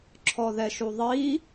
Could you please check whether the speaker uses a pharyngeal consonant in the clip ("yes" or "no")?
no